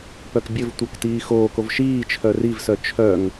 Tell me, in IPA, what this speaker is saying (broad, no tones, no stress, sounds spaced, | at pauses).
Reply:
p œ k bʲ ɘ v tʷ œ k t iː x oː k o v ʃ iː t͡ʃʰ œ r i v s œ t͡ʃʰ œ ŋ